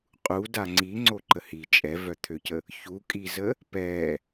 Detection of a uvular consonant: present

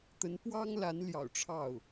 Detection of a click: absent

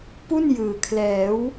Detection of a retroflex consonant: absent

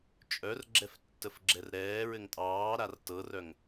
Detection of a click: present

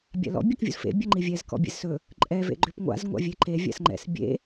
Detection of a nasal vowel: absent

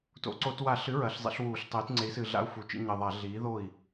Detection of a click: present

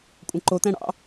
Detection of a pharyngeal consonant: absent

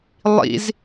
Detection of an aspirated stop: absent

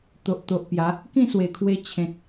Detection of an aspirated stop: present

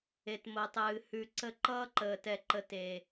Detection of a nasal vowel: absent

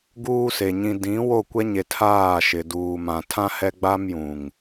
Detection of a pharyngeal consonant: absent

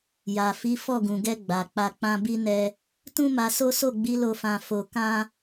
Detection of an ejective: absent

